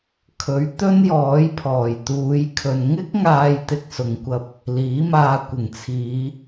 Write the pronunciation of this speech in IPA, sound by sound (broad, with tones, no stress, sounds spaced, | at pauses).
kʰ ɵ˨˥ ɥ t̪ ɵ˥ n j ɔː˨˥ j pʰ ɔː˨˩ j t̪ uː˨˧ j kʰ ɵ˨ n ŋ ɪ˥ k̚ ŋ aː˧ j t̪ ɪ˧ k̚ s ʊ˨ ŋ kʷ ɐ˧ p̚ | l iː˨˥ m aː˧ kʷ ɪ˨˩ ŋ t͡sʰ iː˨˧